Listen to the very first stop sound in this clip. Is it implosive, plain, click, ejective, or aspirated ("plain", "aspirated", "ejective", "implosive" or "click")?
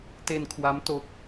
plain